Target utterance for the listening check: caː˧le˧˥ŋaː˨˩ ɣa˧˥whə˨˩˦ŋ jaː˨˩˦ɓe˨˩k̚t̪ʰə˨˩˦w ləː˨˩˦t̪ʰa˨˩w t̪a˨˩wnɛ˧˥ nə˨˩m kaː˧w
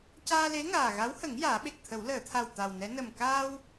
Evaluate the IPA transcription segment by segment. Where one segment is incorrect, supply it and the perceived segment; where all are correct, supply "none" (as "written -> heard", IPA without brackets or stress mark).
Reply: əː˨˩˦ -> əː˨˩˨